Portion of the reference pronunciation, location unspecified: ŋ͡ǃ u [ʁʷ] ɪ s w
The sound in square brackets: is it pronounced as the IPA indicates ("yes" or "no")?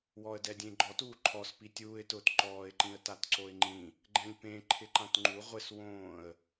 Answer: yes